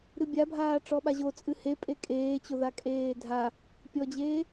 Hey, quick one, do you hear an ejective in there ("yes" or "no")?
yes